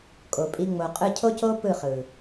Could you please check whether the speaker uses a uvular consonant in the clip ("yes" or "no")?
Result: yes